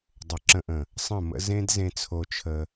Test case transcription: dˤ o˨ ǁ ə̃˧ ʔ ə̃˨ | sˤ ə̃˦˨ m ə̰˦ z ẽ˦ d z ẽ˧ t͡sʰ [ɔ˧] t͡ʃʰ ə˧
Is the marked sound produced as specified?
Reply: no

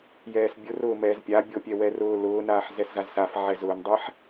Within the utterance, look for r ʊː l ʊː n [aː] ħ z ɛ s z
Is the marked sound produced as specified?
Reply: yes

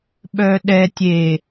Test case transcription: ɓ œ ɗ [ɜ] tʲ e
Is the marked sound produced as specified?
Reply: no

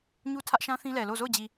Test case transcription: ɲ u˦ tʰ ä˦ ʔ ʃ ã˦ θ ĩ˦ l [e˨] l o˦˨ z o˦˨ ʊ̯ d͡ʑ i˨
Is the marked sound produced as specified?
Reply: no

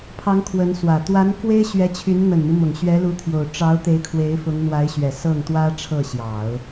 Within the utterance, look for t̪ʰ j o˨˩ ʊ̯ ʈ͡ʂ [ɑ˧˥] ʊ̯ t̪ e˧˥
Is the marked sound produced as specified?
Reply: yes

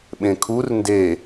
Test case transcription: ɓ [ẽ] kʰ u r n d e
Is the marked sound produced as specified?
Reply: yes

